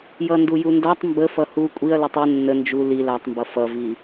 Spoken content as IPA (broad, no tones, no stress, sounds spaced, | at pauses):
j ʌ n d u j u n d a tˤ m b ə f ʌ h u kʷʼ i ɐ̯ l ʌ tˤ u nː ə n d͡ʒ u l i l a tˤ m b ʌ f ʌ v i